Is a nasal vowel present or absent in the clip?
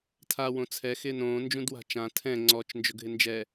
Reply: present